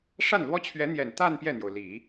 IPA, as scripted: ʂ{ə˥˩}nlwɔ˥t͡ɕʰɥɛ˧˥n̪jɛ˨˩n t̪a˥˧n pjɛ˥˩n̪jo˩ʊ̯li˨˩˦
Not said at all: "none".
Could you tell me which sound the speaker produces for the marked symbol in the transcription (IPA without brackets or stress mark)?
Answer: a˥˩